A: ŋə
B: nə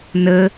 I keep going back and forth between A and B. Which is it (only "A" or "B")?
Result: B